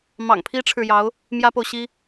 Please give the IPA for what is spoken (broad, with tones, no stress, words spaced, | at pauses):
mɑ̰˨˩ŋpʰi˥ʈ͡ʂʰɻ̩˨jɑ˧˥ʊ̯ | mjä˥po˨ʊ̯ɕi˥